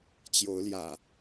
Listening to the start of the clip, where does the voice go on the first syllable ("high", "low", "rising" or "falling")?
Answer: rising